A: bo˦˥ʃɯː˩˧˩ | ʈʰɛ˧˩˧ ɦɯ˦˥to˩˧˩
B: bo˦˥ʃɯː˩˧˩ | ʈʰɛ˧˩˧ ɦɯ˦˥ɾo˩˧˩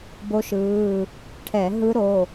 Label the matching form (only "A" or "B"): B